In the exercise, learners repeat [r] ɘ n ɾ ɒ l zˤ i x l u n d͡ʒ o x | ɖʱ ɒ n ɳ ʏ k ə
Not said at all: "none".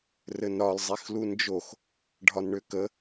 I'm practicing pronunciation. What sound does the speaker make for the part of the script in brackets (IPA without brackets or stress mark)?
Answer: r